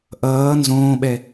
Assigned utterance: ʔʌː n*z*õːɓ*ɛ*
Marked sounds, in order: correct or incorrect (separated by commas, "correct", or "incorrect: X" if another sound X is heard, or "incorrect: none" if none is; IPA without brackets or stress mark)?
correct, correct